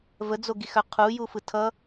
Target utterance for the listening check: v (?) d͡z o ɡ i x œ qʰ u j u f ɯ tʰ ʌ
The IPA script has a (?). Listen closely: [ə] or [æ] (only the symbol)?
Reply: ə